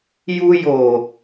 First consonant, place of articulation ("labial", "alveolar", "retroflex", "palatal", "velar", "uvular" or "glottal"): palatal